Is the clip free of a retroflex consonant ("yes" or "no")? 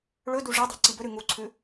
no